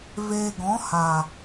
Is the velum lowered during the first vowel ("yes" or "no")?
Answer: no